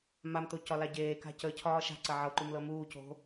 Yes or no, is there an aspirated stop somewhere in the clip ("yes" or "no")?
yes